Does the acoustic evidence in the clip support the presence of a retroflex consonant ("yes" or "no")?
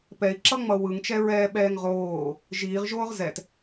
no